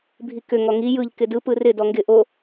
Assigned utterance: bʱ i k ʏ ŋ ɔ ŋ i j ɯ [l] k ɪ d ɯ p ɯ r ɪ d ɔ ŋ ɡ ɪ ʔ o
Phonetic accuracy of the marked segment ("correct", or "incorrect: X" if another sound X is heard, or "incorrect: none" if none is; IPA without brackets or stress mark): incorrect: ʎ